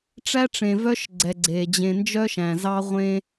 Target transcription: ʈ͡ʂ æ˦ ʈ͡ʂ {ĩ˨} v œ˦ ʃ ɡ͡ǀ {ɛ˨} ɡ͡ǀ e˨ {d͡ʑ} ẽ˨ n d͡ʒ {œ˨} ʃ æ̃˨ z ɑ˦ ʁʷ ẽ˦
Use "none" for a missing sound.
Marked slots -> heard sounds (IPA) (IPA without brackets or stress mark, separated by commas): ẽ˨, ɛ˨, d͡ʑ, œ˦